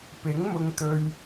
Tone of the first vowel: rising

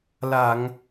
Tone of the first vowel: low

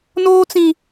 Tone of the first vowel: high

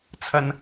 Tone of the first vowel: low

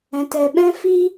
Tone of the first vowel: low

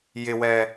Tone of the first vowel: high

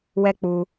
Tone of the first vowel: high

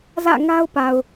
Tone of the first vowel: falling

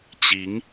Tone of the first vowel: rising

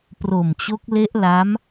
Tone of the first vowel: low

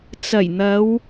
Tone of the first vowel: low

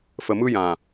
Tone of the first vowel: low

